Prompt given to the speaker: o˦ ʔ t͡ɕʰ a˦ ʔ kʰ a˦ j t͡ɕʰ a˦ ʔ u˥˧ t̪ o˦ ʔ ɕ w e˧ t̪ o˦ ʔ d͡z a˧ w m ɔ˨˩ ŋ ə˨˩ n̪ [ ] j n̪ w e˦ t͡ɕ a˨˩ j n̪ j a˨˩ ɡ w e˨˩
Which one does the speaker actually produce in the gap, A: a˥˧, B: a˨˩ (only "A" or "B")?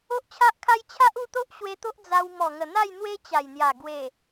A